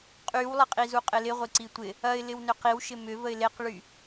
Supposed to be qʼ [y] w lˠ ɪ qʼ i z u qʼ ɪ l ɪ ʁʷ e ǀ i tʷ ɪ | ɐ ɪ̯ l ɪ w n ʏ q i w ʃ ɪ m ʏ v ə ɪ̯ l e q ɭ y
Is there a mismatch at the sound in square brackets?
no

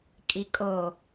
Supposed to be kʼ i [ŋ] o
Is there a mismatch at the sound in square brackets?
yes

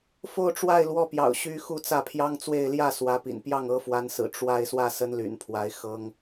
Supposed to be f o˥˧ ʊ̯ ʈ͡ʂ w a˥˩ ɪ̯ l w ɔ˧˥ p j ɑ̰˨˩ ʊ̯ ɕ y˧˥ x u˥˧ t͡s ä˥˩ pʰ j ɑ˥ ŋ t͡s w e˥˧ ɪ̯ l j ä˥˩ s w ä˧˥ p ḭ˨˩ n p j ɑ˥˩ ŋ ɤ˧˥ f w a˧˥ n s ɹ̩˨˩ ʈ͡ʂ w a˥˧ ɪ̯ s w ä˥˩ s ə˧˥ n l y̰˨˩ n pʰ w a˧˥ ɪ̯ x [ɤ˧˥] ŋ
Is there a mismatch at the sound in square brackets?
yes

